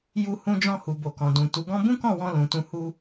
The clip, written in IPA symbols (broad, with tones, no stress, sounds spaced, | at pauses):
j u˧ h ũ˧ d͡ʒ ɔ̃˧ h u˨ b o˨ k ɔ̃˨ d ũ˨ t u˨˦ ɡ ɔ̃˦ b ũ˦ k ɔ̃˦˨ w ɔ̃˧ l ũ˨ t ũ˧ h u˧